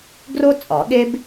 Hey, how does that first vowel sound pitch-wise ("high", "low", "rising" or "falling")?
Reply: high